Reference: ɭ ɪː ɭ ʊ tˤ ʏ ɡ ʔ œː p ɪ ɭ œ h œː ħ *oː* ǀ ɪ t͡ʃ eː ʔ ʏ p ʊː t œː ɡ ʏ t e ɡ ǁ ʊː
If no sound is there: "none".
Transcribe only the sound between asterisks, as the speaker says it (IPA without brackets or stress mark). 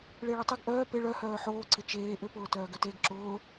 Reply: oː